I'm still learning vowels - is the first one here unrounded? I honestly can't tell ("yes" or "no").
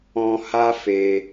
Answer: no